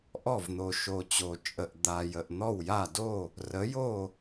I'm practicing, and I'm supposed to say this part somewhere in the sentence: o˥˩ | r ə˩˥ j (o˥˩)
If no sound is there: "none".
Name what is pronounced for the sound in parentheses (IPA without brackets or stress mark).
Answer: o˥˩